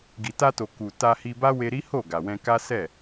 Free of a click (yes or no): yes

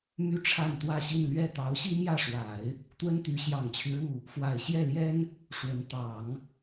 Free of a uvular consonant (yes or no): yes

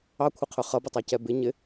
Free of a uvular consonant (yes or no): no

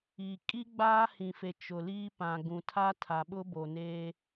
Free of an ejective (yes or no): no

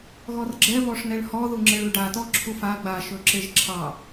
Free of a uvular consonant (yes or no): yes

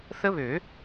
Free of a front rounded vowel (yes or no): no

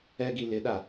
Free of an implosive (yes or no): no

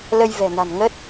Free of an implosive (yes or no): yes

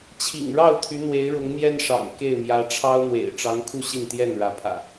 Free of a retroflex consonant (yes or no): no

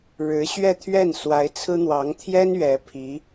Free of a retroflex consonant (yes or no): no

